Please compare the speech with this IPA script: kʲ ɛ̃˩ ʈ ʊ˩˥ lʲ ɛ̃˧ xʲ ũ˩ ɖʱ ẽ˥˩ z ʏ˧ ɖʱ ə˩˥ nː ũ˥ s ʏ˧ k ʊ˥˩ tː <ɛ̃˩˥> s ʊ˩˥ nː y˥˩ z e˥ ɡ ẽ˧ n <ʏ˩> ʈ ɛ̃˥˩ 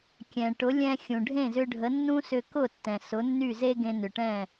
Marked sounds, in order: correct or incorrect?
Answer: incorrect, correct

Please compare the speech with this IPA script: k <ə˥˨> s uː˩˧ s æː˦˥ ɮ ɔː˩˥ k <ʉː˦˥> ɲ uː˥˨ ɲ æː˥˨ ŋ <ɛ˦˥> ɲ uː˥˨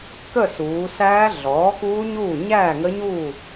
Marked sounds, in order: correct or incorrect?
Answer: correct, incorrect, incorrect

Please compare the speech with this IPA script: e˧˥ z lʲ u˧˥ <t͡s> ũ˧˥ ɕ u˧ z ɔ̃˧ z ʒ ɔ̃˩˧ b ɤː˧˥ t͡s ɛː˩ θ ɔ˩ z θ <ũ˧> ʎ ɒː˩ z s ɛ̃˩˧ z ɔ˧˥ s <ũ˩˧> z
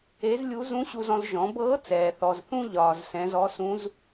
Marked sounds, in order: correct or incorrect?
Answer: incorrect, correct, incorrect

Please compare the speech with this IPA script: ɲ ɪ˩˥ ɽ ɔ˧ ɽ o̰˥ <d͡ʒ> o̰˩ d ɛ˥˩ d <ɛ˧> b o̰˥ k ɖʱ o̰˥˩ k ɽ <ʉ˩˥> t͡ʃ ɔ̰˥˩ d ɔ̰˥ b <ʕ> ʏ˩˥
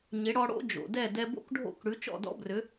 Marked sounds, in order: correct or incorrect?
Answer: correct, correct, correct, incorrect

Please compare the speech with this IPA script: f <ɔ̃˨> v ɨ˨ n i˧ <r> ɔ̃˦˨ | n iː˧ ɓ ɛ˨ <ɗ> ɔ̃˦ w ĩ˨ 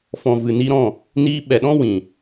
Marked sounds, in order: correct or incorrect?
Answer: correct, incorrect, correct

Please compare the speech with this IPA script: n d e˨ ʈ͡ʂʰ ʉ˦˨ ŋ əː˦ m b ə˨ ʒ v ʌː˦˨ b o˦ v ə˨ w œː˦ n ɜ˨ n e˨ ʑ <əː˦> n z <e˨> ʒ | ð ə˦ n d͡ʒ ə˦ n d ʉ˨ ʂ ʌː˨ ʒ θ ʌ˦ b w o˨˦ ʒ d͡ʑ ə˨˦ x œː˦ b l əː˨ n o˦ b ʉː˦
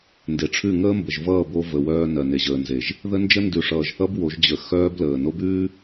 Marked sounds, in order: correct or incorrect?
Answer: incorrect, correct

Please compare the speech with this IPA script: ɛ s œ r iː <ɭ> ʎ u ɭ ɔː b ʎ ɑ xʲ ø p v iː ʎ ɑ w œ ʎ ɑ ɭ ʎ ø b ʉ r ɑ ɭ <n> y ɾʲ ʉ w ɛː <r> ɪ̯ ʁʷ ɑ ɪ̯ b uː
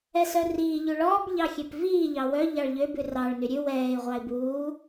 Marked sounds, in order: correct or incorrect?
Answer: incorrect, correct, incorrect

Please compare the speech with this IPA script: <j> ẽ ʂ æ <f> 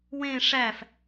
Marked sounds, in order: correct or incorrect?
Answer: incorrect, correct

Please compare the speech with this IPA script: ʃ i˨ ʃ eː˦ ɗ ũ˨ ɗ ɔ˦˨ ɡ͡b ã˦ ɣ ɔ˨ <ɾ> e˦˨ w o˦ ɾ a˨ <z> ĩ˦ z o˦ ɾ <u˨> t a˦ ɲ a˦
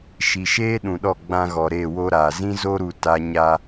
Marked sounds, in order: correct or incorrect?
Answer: correct, correct, correct

